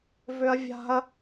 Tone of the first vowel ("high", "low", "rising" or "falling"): high